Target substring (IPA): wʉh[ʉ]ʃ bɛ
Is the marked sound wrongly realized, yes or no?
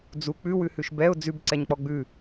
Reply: no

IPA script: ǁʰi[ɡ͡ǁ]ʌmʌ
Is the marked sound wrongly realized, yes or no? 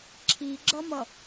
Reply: no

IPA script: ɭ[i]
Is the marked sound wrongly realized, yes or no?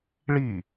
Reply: no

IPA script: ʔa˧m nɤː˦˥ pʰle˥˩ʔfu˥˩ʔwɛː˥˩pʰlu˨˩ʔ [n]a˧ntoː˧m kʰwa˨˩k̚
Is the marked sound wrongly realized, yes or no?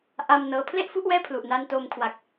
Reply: no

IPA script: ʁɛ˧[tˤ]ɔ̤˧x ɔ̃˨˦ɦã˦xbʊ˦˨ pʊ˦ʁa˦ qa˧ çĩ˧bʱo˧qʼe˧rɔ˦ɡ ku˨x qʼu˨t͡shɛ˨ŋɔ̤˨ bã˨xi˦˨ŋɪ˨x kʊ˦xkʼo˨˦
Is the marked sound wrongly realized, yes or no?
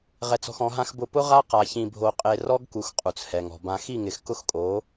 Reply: yes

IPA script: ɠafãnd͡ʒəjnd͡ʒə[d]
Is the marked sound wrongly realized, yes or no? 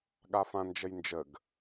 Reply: yes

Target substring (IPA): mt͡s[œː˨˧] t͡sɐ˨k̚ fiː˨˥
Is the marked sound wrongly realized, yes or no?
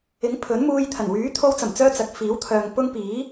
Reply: yes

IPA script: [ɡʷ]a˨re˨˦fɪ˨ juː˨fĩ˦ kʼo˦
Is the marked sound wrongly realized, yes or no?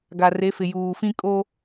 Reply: yes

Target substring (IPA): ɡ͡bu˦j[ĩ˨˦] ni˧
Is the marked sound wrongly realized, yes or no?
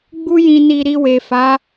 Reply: yes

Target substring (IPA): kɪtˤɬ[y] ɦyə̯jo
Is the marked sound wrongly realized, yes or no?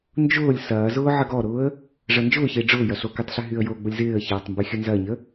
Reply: no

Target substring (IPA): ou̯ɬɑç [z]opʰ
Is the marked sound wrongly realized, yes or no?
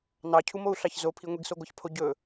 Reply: no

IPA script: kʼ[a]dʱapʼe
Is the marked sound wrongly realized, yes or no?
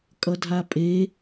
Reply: yes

